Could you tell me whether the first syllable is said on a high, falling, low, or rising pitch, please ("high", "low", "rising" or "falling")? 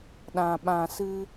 low